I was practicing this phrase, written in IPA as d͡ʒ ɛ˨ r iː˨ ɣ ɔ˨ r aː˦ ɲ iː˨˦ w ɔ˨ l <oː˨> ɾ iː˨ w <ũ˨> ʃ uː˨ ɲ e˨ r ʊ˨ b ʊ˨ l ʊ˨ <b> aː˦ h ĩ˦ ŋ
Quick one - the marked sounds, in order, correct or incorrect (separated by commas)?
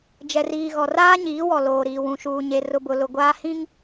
correct, correct, incorrect